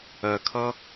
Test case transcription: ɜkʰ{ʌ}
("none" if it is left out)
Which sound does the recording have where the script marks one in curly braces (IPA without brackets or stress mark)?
ʌ